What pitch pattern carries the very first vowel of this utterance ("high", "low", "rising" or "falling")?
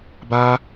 high